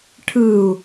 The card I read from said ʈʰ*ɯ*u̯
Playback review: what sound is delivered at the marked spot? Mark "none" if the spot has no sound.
ɯ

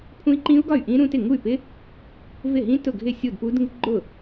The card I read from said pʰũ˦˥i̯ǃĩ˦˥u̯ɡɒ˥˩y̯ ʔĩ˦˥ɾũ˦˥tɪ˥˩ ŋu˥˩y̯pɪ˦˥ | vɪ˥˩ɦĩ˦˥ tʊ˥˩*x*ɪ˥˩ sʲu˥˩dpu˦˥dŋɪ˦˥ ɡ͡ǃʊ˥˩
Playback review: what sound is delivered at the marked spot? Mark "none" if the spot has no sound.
ɡʱ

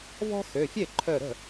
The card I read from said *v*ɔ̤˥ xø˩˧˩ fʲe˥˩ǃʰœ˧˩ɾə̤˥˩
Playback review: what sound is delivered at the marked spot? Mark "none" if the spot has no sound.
v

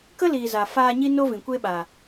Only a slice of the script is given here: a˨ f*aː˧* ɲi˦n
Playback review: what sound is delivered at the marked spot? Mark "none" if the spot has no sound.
aː˧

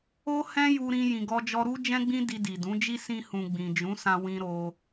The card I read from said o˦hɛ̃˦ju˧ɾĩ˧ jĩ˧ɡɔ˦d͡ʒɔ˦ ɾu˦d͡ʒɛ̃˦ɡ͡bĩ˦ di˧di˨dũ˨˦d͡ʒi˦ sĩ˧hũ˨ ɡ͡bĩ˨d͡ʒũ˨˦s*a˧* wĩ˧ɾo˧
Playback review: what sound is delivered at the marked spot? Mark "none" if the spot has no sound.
ã˧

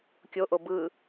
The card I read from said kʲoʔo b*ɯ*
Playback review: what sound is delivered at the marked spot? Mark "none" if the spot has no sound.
ɯ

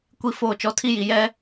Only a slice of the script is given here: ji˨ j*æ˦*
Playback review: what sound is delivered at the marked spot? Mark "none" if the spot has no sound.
ɛ˦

